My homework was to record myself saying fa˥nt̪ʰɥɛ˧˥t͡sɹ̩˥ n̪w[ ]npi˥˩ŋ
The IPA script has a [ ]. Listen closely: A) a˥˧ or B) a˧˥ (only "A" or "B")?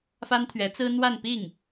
A